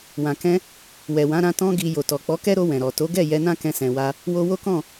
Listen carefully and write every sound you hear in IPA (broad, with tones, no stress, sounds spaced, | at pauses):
w ã˨ k ɛ̃˧ | w ɛ˨ w ã˨˦ ɾ ã˧ t ɔ̃˧ ɡ i˨ j o˨ t ɔ˨ k͡p ɔ˨˦ k ɛ˦ ɾ o˧ w ɛ̃˨ ɾ ɔ˨ t o˨˦ ɡ ɛ˦˨ j ɛ˧ n ã˦ k ɛ̃˧ s ɛ̃˨ w a˧ | w o˧ w o˦ k ɔ̃˦˨